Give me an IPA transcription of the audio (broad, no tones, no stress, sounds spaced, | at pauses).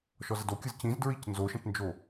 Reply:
ʃ ɔ z ə d o kʲ ɯ z c ĩ z d ɹ i c n z o ʃ ə̃ t n d͡ʒ o